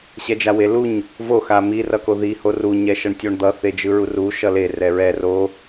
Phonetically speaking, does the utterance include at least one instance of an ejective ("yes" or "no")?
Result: no